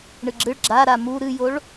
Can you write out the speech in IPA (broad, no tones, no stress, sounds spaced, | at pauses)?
ɳ ɨ ɡ͡ǁ ɨ ɭ ɡ͡ǁ a ɾ a m u ɾ ɨ j o ɭ